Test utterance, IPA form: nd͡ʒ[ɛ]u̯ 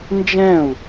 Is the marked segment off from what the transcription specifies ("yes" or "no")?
yes